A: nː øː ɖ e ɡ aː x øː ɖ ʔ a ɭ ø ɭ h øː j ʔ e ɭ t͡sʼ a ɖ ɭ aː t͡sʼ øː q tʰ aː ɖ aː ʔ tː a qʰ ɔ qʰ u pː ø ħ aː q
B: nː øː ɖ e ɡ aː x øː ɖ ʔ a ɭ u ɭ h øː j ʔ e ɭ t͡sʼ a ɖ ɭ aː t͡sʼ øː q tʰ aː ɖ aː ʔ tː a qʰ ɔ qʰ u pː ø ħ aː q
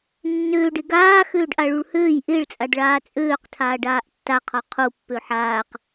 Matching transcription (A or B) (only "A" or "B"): B